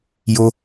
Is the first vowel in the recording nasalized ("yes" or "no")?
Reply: no